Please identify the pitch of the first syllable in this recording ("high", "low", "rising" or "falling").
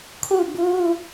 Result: falling